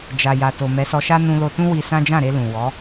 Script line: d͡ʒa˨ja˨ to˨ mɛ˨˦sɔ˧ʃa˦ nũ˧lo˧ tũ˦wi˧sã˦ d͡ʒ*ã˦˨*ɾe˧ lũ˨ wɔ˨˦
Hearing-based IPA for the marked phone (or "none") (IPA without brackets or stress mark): ã˦˨